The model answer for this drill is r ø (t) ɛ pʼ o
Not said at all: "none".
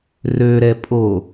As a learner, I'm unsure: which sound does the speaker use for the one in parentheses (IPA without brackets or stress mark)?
ɾ